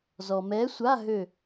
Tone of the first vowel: low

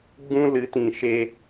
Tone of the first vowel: high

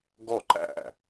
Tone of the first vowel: falling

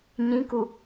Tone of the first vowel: rising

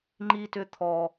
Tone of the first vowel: high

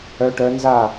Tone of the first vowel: rising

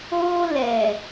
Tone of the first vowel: high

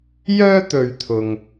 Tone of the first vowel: high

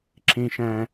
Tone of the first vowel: low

